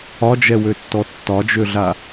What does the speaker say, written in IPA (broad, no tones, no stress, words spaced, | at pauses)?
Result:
ɒd͡ʒɛwøtːɔ tːɒd͡ʒøɮa